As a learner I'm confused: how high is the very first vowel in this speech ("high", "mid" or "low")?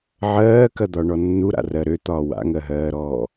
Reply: mid